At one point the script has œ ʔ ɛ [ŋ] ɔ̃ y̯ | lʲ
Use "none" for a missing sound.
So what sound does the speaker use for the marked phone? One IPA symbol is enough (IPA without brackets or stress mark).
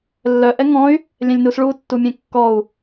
ŋ